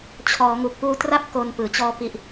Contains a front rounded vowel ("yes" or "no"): no